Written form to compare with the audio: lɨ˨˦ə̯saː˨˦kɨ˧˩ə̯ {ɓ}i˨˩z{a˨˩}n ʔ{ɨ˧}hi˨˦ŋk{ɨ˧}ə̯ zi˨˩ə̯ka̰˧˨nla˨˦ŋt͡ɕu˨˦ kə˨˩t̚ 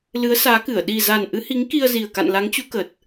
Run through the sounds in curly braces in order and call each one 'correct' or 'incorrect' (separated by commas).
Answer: incorrect, correct, incorrect, incorrect